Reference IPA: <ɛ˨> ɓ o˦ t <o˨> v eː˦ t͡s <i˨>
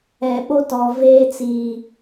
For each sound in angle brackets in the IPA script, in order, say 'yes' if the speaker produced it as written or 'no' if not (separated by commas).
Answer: yes, no, yes